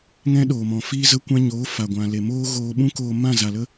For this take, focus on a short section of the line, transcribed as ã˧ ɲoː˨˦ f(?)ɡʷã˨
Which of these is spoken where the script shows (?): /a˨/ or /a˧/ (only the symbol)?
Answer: a˨